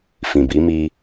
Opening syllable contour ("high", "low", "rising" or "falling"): low